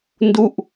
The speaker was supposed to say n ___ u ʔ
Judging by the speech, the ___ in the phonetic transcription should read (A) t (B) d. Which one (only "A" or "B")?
B